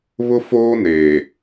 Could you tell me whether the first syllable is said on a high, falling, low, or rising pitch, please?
high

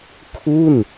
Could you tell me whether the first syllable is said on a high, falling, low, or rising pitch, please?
falling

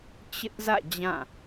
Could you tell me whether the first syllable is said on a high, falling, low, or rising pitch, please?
high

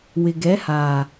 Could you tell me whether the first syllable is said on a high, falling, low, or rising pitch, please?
low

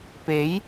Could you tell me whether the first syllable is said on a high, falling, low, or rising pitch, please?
rising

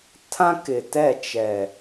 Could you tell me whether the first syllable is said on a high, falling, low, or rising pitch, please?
high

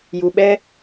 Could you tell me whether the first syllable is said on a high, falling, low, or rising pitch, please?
low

